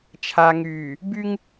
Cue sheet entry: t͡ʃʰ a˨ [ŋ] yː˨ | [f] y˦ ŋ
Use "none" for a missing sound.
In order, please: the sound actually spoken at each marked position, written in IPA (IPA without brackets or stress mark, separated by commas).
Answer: ŋ, b